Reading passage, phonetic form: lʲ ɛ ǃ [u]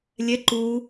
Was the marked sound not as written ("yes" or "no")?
no